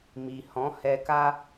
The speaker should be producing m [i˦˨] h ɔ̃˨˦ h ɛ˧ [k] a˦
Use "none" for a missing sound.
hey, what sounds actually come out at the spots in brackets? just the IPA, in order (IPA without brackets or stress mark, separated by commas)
i˨, k